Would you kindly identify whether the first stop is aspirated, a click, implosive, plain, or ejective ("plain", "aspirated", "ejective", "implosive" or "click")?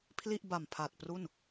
aspirated